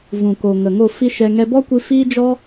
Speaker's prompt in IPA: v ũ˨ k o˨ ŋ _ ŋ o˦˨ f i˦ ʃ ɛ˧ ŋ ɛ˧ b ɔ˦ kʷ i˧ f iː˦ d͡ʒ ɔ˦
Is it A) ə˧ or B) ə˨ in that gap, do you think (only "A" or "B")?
B